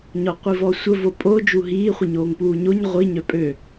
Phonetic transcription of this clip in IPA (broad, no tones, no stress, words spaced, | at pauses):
ɲɔqʷivɔsʷə vopʼo d͡ʒuɦiː χʷiɲoːŋpuːɲoɲ ʁʷi ɲœpʼø